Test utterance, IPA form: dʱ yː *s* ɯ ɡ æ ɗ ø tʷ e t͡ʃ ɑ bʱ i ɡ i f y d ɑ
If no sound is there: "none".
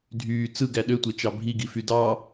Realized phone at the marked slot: t͡s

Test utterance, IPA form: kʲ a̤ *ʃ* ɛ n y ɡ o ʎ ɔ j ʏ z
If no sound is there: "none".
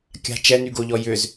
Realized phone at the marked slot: t͡ʃ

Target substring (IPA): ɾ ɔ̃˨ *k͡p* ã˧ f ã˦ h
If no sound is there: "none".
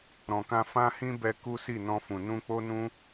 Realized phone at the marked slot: k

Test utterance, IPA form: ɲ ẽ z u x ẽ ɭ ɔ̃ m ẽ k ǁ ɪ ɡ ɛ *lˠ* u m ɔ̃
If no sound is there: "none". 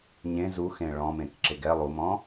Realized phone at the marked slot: lˠ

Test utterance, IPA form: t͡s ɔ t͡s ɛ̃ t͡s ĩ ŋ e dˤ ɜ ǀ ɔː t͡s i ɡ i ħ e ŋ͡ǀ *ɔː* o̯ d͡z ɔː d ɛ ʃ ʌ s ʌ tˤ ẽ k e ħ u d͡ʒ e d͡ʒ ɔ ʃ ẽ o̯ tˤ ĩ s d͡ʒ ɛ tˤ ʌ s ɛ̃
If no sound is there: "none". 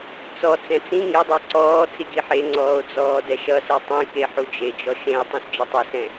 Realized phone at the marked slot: ɔː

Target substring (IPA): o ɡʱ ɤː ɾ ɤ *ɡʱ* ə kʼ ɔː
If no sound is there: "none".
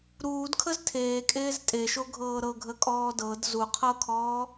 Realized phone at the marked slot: ɡʱ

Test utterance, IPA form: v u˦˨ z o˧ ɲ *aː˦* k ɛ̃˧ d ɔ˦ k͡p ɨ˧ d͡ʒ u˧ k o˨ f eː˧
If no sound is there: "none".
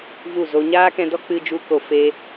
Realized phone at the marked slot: aː˦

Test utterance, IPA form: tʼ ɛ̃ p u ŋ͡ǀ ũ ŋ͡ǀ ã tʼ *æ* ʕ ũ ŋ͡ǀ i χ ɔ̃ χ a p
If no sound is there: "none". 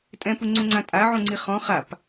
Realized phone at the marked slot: a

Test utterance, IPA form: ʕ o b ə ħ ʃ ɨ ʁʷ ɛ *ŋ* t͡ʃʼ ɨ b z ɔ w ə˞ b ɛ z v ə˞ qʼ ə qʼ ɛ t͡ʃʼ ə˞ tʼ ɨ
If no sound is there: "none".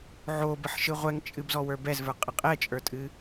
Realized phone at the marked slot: ŋ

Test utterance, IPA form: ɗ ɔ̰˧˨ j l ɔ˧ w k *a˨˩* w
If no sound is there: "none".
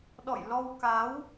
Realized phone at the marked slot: a˨˦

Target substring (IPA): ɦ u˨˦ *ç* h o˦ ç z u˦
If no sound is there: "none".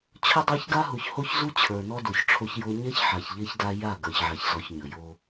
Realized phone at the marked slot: ç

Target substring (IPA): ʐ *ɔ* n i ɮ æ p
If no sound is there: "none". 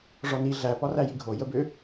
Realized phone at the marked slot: ɔ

